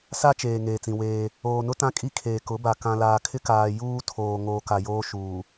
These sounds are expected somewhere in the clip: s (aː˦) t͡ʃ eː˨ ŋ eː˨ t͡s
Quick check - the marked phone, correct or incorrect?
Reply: incorrect: a˦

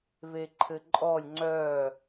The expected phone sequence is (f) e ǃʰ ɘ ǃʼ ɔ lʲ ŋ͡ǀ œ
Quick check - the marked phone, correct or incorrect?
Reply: incorrect: v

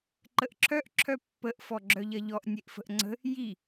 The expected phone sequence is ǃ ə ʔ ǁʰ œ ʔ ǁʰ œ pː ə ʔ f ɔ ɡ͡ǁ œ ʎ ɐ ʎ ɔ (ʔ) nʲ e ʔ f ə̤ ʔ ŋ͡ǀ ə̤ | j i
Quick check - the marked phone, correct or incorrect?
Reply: correct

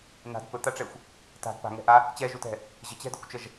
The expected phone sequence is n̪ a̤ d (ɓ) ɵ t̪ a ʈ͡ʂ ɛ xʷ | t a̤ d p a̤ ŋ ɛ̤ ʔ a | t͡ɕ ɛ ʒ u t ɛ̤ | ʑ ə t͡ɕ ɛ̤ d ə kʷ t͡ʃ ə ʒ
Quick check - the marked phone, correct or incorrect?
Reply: incorrect: p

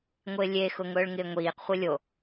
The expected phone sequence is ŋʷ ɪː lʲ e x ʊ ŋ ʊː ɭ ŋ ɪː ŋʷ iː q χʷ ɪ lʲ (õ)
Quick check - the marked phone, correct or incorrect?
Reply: incorrect: o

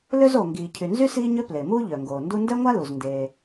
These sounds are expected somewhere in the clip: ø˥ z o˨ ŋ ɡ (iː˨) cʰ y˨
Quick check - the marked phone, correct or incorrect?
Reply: correct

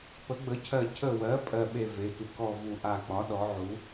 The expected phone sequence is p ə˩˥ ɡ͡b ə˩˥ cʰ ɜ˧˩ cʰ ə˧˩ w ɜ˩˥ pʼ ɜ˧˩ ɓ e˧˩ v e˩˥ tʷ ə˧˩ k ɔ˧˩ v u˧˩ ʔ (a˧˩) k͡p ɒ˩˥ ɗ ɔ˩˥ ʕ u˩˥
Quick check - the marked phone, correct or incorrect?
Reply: correct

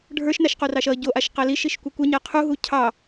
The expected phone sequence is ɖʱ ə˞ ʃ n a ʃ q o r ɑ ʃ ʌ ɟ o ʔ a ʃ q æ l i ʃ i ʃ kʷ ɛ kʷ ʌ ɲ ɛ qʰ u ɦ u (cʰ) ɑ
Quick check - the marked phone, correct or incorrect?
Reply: correct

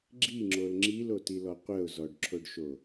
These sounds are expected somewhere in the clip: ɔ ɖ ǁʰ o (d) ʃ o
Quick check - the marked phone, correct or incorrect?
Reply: incorrect: ɖ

